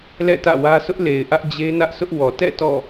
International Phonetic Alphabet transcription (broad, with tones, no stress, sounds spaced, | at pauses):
l ɛ̰˦˨ t ä̰˦˨ w ä˦ s ʊ˦ ʔ l e˨ ɪ̯ ʔ ä˦ ʔ d͡ʑ e˦ n ä˦ ʔ s ʊ˦ ʔ w ɔ˨ t ɛ̰˦˨ t ɔ̰˦˨